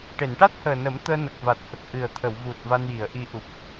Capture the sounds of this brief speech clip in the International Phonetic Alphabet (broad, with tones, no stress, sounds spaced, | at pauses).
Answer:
ʈ e˨˩˨ n ʈ a˦˥ t̚ h əː˨˩ n ə˨˩˦ m t̪ əː˧ n ə˨˩ k̚ v a˨˩ t̚ h ə˨˩ k̚ ʔ ɨ˨˩ ə̯ t̪ʰ ə˨˩˨ w v u˨˩ t̚ v a˧ n j i˨˩˨ ə̯ ʔ i˧ ʔ u˨˩ p̚